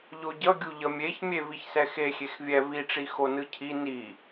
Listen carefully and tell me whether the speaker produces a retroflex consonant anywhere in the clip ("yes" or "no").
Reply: yes